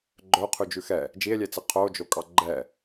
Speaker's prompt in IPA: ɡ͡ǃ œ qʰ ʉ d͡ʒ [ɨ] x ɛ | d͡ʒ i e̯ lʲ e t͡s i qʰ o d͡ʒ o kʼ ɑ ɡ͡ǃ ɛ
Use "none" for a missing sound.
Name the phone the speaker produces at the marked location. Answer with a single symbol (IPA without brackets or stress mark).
ʉ